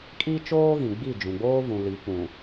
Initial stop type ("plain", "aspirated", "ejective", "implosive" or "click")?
ejective